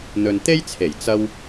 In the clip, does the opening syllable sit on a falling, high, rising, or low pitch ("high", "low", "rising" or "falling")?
low